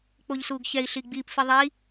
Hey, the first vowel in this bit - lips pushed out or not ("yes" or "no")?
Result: yes